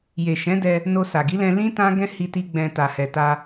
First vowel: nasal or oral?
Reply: oral